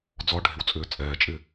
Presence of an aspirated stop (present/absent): absent